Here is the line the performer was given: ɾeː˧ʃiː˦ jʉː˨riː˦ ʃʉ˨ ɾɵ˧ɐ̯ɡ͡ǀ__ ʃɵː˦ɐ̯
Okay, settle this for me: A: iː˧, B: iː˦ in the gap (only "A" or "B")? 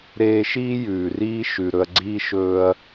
B